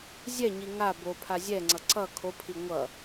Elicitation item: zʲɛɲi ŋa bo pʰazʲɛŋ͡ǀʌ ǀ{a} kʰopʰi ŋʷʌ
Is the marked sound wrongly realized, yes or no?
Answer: yes